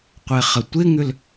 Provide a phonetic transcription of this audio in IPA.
qʷɛχɐtʷɪŋʏl

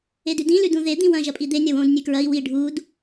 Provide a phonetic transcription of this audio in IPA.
edʉdĩ lʉdũðe d̪ĩwɐ̃ ʒɐpʼid̪e nʲɐwõd nʲʉkɹɐi̯ wi ɖʱud

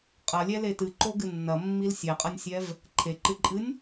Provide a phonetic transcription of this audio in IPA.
qʼɐlʲɛle tɨǃoɡɨ nːɐmːil sʲɛqʼɐnʲsʲɛv | ǃʰeǃɨǃʼɨnʲ

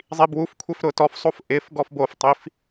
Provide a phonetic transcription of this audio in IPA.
zˤibwufkʷʰef ɾʊtɔfsˤof ʔɪf ɡɔfboftˤif

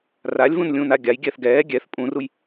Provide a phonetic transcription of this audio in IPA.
ralʲvũnlʲũːna ɡʲaj ɡʲɛθɡɛː ɡʲɛθ pʼũruj

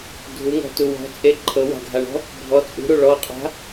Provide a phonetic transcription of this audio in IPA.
dʱuŋɔ̤tu wɔ̤t͡sʼe ǃʰɤwa̤ɡʱaɳɔ̤ | bʱɔ t͡sʼṳɾu ɭɔqʼa̤

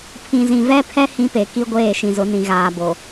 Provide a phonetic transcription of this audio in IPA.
pʰĩ˨zĩ˨vɛ˦pʰɛ˦ hĩ˦pe˨ ki˦ɡʷeː˦˨ʃĩ˨zʊ˨˦ nĩ˨ɣaː˨bo˨

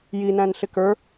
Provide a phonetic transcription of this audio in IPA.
jinæ̃n ɬɪkə˞

